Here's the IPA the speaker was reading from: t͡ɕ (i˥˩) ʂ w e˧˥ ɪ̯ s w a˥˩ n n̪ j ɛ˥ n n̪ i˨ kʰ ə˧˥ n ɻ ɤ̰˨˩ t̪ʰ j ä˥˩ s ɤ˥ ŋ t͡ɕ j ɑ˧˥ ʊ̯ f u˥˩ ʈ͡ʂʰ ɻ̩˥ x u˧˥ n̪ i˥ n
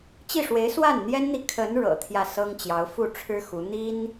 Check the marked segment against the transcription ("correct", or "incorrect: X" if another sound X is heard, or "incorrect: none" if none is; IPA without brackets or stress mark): correct